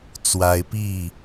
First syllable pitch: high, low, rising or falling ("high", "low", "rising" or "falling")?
high